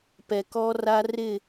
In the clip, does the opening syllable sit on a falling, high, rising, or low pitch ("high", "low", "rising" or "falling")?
low